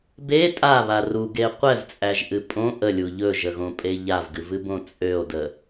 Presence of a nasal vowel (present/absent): present